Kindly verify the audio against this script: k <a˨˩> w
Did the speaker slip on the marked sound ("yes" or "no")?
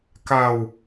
yes